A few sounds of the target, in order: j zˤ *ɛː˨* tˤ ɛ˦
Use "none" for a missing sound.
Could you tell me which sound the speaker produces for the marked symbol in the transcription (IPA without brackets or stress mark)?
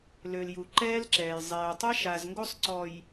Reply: ɛː˨